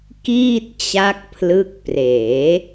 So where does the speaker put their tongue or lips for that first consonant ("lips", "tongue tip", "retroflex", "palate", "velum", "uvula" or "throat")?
velum